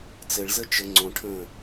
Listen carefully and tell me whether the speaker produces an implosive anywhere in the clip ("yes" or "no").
no